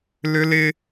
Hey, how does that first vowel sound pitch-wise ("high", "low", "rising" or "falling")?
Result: high